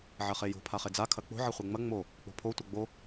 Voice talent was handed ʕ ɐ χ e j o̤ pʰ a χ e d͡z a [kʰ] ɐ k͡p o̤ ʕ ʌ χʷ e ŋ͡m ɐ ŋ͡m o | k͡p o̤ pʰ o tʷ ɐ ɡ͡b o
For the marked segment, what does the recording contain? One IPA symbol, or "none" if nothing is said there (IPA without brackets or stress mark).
kʰ